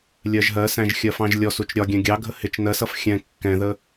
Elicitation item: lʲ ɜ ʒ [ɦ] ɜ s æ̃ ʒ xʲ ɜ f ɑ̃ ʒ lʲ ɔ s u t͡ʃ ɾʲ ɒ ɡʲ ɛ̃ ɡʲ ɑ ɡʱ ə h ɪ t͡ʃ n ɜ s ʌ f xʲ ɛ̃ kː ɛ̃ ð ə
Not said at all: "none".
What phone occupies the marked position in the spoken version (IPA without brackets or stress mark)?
ɦ